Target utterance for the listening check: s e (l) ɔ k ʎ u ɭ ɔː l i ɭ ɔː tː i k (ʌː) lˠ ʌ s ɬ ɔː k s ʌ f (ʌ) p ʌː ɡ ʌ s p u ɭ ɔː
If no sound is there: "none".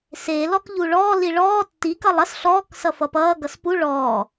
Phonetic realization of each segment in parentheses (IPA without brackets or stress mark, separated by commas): l, ʌ, ʌ